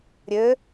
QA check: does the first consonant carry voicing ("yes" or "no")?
yes